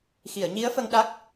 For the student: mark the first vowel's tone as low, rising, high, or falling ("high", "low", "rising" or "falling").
low